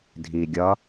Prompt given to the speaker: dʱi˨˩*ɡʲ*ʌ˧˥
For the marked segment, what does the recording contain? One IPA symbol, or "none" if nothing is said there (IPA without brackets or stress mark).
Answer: ɡʲ